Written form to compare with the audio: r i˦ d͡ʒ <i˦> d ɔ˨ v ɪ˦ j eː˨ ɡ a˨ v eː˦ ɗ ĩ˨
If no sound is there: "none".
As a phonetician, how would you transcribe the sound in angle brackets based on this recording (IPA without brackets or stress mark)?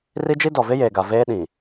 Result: i˦